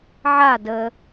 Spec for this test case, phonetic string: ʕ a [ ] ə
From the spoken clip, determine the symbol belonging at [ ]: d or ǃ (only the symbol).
d